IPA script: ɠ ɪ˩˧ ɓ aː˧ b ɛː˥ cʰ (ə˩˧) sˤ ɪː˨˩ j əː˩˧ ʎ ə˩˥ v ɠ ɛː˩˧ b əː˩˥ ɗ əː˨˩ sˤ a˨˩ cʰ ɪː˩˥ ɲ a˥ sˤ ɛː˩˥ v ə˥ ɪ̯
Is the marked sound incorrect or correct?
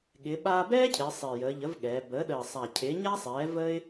incorrect: ɪ˩˧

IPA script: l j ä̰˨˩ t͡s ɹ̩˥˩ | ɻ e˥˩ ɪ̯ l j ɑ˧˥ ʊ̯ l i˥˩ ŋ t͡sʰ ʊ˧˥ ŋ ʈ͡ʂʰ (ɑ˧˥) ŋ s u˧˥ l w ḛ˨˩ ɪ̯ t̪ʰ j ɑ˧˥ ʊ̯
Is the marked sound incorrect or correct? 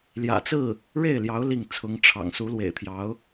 incorrect: ɑ̰˨˩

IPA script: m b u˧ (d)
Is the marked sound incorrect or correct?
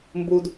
correct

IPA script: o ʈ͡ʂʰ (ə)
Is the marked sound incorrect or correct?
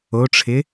incorrect: ɪ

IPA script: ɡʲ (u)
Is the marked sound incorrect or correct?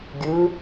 incorrect: ɯ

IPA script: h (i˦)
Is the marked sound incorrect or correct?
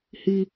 correct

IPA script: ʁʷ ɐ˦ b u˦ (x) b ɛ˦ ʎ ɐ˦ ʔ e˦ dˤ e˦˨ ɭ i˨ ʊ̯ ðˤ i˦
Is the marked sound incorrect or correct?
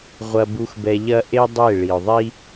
correct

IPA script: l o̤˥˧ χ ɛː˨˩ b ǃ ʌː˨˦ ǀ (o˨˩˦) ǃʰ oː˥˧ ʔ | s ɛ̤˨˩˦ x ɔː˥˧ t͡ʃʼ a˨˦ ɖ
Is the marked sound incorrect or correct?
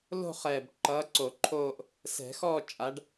correct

